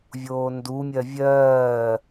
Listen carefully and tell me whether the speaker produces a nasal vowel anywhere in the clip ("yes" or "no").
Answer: no